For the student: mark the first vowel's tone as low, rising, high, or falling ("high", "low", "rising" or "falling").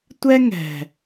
high